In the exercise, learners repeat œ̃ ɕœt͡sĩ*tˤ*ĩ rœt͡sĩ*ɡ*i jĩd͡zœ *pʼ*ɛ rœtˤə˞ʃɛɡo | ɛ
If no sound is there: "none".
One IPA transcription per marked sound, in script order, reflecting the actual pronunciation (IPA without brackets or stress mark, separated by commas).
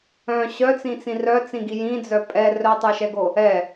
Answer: t͡s, ɡ, pʼ